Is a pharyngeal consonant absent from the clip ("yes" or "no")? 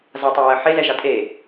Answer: no